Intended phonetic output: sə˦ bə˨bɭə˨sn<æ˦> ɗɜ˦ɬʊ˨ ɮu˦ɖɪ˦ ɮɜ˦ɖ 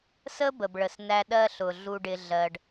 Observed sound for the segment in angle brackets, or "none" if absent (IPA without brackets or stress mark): æ˦